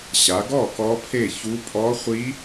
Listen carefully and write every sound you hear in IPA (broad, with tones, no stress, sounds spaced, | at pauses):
ɕ a˩˧ ɡ ɔ˥˩ k ɔ˧˥ pʰ e˥˩ ç u˧˥ pʼ ɔ˧˥ χʷ i˧˥